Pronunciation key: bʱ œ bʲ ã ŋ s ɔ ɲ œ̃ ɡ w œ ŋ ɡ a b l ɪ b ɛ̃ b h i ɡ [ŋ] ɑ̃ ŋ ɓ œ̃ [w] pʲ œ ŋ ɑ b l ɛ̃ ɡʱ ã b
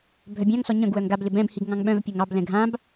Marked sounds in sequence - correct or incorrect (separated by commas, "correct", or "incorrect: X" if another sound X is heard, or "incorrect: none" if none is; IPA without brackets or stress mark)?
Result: correct, incorrect: v